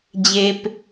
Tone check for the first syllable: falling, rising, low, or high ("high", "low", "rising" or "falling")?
low